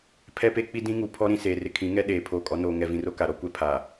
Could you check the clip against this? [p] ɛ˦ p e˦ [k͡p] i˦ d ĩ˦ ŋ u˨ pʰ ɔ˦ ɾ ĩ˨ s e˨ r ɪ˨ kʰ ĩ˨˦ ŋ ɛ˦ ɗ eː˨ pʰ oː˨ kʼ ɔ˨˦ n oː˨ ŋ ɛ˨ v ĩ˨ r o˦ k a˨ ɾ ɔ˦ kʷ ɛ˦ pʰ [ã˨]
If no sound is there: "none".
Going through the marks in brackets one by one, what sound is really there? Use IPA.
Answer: pʰ, k͡p, a˨

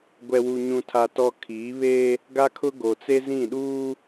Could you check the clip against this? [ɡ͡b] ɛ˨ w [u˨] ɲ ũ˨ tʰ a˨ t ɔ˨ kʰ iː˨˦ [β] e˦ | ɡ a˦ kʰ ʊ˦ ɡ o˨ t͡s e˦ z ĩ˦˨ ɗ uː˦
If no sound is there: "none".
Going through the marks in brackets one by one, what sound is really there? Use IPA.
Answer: ɡʷ, u˨, β

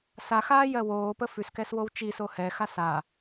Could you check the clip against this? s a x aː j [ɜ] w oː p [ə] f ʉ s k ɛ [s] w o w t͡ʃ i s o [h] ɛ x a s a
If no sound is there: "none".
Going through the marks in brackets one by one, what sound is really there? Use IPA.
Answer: ɜ, ə, s, h

